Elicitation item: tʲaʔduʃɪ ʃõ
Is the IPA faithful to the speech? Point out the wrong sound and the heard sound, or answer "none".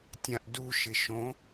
a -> ã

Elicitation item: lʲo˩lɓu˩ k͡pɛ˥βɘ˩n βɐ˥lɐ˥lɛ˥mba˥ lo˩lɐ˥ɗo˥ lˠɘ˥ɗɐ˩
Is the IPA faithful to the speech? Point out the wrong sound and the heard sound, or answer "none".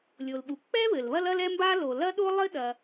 n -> l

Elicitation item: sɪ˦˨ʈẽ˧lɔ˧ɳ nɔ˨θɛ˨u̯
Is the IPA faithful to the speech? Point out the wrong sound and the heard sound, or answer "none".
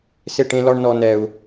θ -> n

